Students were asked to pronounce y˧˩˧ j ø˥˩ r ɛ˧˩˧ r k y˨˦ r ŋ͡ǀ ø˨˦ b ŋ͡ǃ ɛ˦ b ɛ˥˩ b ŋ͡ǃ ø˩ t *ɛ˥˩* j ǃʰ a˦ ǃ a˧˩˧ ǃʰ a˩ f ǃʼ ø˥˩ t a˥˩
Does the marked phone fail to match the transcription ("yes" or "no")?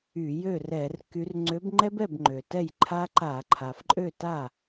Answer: no